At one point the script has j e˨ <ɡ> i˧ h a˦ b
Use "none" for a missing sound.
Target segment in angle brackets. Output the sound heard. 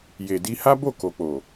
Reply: d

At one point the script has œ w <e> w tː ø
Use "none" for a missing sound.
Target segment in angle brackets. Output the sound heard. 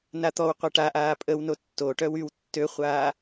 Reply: y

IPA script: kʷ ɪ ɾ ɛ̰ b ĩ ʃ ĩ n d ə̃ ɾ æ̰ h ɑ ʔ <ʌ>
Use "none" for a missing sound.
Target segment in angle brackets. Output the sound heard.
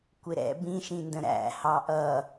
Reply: ʌ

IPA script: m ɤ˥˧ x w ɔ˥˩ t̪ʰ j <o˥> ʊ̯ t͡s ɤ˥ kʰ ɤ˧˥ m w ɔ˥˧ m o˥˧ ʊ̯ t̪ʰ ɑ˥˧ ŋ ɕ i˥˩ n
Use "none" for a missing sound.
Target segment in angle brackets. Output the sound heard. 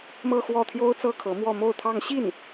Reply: o˥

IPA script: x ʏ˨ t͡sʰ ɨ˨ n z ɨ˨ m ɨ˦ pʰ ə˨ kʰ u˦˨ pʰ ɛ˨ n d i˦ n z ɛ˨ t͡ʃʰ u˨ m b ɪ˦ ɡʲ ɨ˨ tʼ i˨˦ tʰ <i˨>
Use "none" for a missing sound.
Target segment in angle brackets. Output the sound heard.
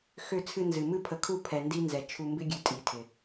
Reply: ɪ˨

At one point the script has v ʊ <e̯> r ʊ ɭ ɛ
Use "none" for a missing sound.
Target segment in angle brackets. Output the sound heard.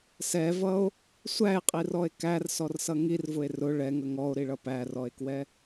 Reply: e̯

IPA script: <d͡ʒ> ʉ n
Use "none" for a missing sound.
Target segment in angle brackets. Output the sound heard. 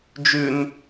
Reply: d͡ʒ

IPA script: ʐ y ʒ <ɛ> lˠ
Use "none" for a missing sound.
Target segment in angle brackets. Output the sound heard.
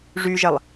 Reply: ɛ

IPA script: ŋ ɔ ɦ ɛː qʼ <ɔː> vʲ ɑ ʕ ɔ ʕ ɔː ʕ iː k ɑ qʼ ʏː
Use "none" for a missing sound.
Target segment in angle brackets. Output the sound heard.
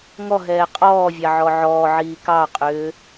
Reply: ɔː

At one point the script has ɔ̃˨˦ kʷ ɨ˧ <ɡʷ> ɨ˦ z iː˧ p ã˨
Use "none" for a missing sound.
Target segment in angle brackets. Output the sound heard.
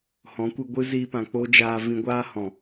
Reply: ɡʷ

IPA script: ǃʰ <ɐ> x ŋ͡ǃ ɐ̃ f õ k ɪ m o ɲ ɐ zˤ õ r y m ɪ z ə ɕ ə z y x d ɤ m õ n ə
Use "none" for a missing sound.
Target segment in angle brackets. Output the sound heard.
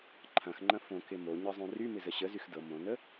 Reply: ɐ̃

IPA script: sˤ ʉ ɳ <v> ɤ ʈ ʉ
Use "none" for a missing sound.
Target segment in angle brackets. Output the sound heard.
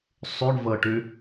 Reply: v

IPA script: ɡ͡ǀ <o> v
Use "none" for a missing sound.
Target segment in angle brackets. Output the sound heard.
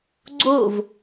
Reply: o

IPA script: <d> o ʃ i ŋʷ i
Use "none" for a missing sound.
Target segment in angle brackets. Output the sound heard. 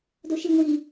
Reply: d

